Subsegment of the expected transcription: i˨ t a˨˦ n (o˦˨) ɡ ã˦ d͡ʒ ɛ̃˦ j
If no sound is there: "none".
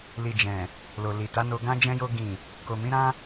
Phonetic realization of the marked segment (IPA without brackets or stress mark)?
o˧